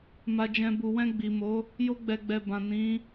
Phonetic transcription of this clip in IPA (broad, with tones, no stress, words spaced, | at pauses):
ma˨d͡ʒɛ̃˨ bu˨wɛ̃˧ɡ͡bi˨mo˨˦ | jo˧ɡ͡bɛ˨ɡ͡bɛ˨ bã˨nĩ˨˦